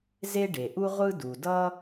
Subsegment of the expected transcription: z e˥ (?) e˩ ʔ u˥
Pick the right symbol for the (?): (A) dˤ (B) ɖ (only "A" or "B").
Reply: B